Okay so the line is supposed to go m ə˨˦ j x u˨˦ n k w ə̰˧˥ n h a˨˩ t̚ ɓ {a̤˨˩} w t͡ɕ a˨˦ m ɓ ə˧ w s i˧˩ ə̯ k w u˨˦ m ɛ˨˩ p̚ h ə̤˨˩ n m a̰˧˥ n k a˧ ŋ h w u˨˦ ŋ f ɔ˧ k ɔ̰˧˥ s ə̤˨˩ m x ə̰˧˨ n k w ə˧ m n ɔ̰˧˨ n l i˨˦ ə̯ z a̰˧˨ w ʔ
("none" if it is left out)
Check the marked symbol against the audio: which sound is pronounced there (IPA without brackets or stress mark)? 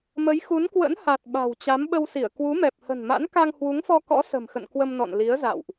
a̤˨˩